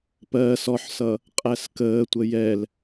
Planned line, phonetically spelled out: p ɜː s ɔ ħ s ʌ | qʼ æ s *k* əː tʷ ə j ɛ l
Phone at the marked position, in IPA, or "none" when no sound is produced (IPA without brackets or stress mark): k